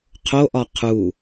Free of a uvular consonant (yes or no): no